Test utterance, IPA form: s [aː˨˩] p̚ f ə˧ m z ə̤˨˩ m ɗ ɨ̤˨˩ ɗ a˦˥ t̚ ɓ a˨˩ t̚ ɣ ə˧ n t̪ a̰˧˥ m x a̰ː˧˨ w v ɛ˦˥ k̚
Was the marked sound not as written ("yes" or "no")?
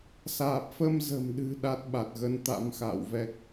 no